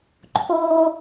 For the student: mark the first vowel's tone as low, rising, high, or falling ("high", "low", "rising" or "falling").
high